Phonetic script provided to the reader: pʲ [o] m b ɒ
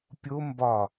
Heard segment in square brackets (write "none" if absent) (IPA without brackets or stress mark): o